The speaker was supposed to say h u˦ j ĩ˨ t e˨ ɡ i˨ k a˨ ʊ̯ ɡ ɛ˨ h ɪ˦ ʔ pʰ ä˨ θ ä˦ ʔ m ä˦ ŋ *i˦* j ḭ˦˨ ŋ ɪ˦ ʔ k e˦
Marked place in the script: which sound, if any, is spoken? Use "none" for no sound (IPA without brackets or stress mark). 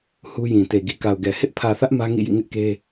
ḭ˦˨